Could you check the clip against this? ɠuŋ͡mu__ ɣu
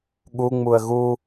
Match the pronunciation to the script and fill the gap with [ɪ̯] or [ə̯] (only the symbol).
ə̯